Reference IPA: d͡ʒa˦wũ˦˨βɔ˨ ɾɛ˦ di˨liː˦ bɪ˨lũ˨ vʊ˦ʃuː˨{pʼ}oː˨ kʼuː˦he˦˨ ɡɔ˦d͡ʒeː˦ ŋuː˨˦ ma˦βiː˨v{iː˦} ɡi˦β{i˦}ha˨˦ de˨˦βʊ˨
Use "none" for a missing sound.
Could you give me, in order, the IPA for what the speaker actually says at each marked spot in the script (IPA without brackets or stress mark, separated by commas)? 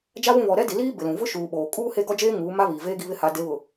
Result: ɓ, eː˦, ɪ˦